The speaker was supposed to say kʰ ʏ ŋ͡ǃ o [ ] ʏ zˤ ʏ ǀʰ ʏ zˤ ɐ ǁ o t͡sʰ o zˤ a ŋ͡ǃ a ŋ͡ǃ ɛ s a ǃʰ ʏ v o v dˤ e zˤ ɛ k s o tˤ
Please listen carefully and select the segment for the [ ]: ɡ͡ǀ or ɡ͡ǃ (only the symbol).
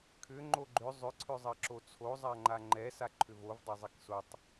ɡ͡ǃ